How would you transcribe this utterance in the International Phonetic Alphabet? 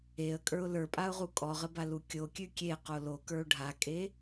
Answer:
e ə̯ kʼ ə˞ ʊ̯ l ə˞ pʼ a ʊ̯ ʁ u kʼ ɔ ʁ ə b a l u kʲ o kʲ ʉ kʲ e q o l o k ə˞ ʊ̯ ɖʱ a kʼ e

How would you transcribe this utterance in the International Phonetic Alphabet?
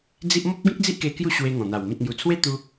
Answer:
d͡z i˦ ʔ m ɔ˦ p̚ ɡ ĩ˦ k̚ d͡z i˦ ʔ k e˧ k j u˥˧ ɕ w e˧ ŋ ɔ̃˨˩ n̪ a˨˩ w m ĩ˨ t̚ ŋ j u˨˩ t͡sʰ w e˦ t̪ u˦

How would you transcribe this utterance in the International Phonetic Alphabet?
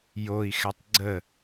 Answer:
j o i̯ x ɛ tˤ ɡ͡ǀ ə

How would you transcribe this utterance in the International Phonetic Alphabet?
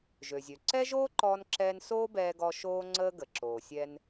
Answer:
ʒ ø˩ zʲ ø˩ ǀ ɛ˥ ʒ oː˥ ǃ ɔː˧ n ǁ ɛː˧ n s oː˥ b ɛː˧ ɡ ɔ˧ ʃ oː˧ ŋ͡ǀ əː˧ ɡ ə˩ ǁ oː˩ sʲ ɛ˧ n

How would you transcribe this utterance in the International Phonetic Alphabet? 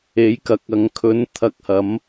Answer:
e˨˥ j k ɐ˨ k̚ ɐ˨ ŋ kʰ ɵ˨˥ n t̪ʰ ɐ˧ k̚ h ɐ˨˥ m

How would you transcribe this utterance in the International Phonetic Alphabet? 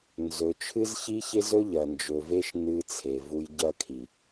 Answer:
n z ɵ˨˦ t͡ʃʰ ɨ˦ z ç i˦ ç e˦ z ɵ˦ ʎ ɐ˨ n d͡ʒ ɵ˨ v e˦ ʃ n ɨ˦ t͡sʰ e˨ v u˦ j ɟ ɐ˦ kʰ i˨

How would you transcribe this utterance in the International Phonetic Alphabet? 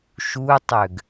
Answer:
ʃ u tˤ ø ɡ

